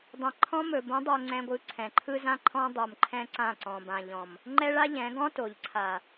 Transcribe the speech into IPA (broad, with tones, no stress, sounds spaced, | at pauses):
dˤ ɛ̃˨ ǃʰ ɔ̃˦ m ɵ˨ b õ˨˦ dˤ o˨ ŋ͡ǀ ɛ̃˨ ɡʷ ɯ˨ ǀʰ ɛ̃˨ ǃʰ ɯ˦ z ã˦ ǃʰ ɔ̃˦ dˤ o˨ m ǃʰ ɛ̃˦ ǀ ã˦˨ ǀ ɔ̃˨ b ã˨ ʎ ɔ̃˨ m | ŋ͡ǃ ɛ˦ ɭ a˦ ʎ ɛ̃˨˦ ɡ ɔ̃˦ t o˨ ʎ ǀʰ a˨